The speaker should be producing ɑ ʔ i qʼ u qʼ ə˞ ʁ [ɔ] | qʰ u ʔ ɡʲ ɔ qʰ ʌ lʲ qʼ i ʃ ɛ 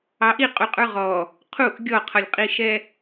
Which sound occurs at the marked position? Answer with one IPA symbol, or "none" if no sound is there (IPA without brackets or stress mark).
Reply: ɔ